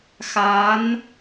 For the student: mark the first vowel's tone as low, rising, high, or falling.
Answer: rising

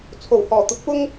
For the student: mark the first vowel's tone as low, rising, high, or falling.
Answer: low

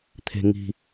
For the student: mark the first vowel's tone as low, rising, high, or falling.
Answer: low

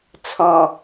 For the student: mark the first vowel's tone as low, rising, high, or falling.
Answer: low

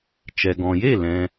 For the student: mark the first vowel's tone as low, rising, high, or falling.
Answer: low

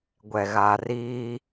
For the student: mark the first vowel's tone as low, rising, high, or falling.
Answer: low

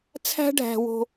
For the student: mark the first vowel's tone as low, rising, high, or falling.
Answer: high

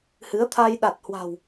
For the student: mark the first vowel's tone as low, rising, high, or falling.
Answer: rising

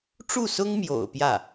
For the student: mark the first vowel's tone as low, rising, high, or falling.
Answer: falling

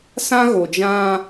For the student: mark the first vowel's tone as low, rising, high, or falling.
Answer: high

